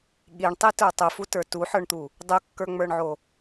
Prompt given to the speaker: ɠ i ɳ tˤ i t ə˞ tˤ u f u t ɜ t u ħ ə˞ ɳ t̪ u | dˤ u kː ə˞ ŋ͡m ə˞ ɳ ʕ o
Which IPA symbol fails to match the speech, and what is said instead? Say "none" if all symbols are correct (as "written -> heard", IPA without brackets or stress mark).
ɜ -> ə˞